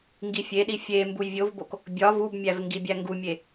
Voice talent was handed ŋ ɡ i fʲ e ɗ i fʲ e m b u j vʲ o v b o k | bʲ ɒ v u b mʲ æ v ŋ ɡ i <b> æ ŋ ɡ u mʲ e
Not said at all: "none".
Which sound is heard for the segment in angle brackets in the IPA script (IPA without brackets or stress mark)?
bʲ